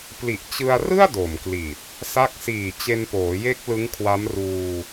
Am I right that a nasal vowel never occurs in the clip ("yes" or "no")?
yes